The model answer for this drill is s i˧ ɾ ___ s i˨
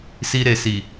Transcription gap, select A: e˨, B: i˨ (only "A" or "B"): A